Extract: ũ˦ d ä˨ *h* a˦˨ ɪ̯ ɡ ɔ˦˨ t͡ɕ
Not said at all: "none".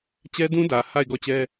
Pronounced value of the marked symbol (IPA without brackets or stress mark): h